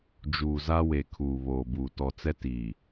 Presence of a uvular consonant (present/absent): absent